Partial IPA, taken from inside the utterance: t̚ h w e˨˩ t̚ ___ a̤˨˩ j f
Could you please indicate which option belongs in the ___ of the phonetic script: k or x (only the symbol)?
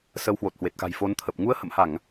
k